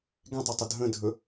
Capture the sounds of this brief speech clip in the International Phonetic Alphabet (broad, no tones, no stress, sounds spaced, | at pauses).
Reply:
ɡ ɛ̃ tˤ ɵ tˤ ə dʱ ə̃ dʱ ɵ